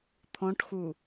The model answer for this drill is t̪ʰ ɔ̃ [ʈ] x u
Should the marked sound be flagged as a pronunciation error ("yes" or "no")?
no